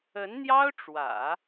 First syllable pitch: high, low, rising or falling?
rising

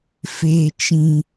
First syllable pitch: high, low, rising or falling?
low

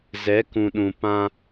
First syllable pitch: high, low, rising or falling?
rising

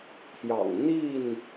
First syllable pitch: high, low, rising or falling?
low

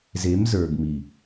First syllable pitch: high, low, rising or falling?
rising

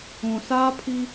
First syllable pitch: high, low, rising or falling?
low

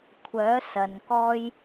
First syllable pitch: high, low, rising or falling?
rising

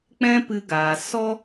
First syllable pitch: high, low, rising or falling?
high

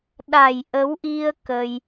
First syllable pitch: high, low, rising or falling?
low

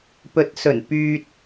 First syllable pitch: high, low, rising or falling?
low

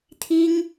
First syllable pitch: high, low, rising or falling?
high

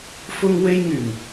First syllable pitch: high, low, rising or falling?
high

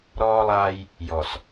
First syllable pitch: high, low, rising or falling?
high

